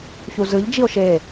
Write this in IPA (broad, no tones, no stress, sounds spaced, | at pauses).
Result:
ç u z ɯ ʎ d͡ʒ i o̯ ʃ e